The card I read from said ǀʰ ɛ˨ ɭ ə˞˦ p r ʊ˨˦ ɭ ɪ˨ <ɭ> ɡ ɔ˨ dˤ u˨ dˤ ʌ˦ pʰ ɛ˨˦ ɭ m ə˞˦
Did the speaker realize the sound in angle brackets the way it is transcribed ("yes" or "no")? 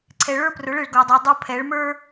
yes